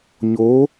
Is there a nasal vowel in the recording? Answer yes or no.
no